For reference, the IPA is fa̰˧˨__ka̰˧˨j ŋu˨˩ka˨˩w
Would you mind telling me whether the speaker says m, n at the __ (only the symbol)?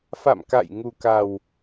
m